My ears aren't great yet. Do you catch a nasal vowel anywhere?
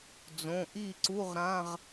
yes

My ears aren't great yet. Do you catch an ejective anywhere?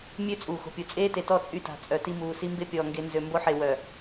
yes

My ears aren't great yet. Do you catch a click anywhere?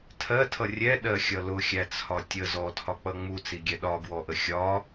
no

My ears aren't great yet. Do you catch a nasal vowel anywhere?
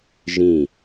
yes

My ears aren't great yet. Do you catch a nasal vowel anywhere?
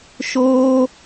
no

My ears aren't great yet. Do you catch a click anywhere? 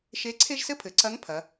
yes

